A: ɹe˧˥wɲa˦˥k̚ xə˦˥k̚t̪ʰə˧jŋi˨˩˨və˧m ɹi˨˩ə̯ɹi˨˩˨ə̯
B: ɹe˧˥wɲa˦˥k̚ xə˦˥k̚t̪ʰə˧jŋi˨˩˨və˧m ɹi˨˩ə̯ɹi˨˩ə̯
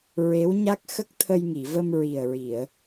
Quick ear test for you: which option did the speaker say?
A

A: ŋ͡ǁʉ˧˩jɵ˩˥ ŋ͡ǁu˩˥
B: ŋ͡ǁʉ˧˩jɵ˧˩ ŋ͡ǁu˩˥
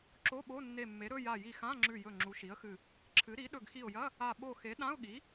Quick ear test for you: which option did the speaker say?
B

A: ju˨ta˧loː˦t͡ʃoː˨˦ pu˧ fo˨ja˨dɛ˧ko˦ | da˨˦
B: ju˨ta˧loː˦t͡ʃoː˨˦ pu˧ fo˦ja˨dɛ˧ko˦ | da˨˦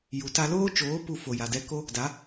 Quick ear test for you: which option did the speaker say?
A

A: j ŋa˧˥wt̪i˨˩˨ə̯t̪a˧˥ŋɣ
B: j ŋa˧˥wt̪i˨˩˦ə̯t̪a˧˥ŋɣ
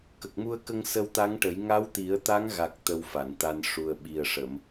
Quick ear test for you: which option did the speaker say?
B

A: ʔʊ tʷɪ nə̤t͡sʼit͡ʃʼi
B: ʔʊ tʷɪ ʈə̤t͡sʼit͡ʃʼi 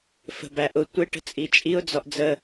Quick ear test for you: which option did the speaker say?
B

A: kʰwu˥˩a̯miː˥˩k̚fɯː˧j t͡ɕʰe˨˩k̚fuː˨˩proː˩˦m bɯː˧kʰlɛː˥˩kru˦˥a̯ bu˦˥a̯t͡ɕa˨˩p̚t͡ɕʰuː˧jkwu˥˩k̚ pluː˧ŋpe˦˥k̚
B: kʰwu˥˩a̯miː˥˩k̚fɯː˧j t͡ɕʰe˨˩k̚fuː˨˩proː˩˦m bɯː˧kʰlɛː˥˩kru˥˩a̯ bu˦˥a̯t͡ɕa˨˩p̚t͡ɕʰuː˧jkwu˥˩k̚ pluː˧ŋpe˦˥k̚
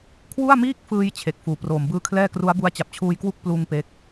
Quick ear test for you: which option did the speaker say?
A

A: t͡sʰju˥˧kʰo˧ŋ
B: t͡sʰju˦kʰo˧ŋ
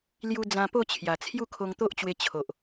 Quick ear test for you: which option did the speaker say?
A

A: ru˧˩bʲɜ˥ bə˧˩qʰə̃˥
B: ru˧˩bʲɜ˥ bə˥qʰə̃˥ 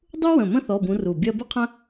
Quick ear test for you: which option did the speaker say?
B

